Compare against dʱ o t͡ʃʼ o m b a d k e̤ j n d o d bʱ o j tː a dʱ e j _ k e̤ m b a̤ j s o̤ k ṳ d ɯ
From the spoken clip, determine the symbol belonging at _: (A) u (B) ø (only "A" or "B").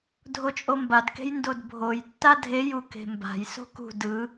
A